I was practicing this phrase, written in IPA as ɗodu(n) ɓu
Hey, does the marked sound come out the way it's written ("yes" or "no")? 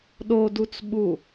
no